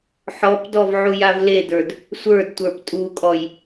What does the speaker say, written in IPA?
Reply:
ħ ɔ p d ɔ v ʕ u j a v l e d ə˞ d | sʷ ə˞ d tʷ ə˞ p tʼ u kʼ ɔ j

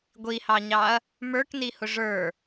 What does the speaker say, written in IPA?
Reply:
ɡʷ i h ɑ ɲ ɑ ɐ̯ | m ə˞ k n i h ʊ ʐ ə˞

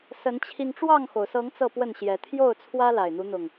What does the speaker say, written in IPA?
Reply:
s ə˨˦ n t͡ɕʰ i˧ ŋ ʈ͡ʂ w ɑ˥˨ ŋ x o˩ ʊ̯ s ɤ˨˦ ŋ t͡s ɤ˥˨ p w ə˥˨ n ɕ j ɛ˨˦ t̪ʰ j o˥˨ ʊ̯ t͡sʰ w ä˦ l a˨˩ ɪ̯ n̪ u˨˦ n̪ ʊ˨˩ ŋ

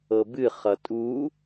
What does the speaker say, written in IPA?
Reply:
ɤ b ɨ χ ʌ tʼ u

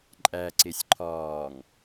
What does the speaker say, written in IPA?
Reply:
ǃʼ æ ǀ e sʲ ǃʰ ɒː ŋ

